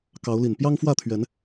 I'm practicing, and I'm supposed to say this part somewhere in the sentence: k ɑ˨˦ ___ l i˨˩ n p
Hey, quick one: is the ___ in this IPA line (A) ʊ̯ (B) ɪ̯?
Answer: A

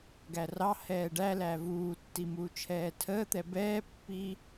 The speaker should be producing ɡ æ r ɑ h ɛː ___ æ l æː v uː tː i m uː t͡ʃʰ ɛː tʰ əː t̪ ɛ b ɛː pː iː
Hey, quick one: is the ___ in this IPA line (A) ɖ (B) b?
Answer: A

